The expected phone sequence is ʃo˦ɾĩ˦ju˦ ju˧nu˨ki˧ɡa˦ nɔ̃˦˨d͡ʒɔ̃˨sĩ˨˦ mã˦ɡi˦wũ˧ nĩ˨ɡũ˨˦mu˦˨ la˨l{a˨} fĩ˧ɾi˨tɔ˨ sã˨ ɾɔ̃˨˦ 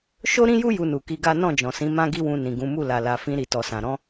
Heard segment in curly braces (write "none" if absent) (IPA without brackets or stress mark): a˨